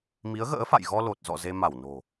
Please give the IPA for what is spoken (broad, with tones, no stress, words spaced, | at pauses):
mi˨˦ə̯ɣə̰ː˧˥fa̰˧˨jɣɔ˧ lo˨˩t̚zɔ̰˧˨ ze˧ma˧˩wno̤˨˩